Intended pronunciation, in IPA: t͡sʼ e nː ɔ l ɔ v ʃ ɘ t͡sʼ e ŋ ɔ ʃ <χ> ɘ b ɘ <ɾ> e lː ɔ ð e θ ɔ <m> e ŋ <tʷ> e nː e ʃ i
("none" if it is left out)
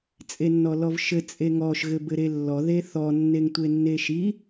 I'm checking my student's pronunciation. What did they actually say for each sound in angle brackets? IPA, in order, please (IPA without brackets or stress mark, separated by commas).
ɣ, ɾ, nː, tʷ